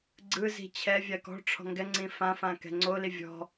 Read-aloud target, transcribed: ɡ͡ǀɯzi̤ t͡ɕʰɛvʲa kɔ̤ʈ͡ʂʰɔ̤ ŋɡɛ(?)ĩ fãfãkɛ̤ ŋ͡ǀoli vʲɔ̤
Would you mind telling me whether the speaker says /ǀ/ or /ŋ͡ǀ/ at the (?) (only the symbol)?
ŋ͡ǀ